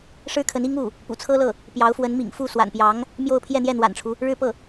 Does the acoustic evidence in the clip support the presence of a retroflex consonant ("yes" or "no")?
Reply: yes